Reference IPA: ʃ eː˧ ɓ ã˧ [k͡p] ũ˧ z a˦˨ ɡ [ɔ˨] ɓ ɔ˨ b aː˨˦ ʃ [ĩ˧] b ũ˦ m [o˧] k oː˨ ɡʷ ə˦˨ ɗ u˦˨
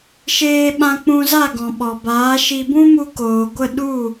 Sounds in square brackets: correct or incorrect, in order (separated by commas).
correct, incorrect, incorrect, incorrect